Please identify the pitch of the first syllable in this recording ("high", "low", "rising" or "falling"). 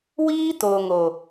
high